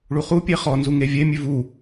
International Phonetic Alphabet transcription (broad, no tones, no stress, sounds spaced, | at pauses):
ɭ u χ u pʲ e χ ɔ n z u ŋ e vʲ e mʲ ʉ v u